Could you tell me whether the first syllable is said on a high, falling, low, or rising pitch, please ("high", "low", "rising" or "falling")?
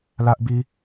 high